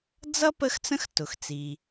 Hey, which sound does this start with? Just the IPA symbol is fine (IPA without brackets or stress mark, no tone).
d͡z